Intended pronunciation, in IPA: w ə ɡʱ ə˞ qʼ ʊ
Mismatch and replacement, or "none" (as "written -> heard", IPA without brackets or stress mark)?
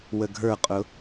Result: none